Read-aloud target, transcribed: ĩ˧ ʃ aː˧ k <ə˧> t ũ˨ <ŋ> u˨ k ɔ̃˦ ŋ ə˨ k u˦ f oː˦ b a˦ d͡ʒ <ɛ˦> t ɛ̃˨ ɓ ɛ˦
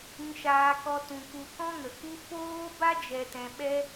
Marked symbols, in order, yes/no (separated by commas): no, no, no